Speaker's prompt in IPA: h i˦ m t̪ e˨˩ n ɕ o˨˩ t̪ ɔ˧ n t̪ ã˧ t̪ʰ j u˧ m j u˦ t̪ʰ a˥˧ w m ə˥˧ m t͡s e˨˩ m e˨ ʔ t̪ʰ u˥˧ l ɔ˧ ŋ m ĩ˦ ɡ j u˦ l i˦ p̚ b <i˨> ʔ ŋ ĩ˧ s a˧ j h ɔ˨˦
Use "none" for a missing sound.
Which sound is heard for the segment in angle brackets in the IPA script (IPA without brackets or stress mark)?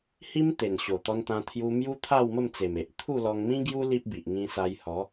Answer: i˨